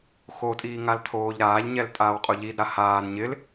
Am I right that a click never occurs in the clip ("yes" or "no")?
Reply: yes